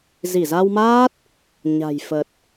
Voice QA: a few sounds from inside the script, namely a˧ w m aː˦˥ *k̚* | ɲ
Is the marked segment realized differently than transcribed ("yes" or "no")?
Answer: yes